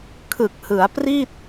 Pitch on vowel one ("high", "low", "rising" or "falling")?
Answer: low